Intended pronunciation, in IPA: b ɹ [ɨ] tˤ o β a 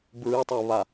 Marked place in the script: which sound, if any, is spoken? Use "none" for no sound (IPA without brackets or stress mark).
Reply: ɨ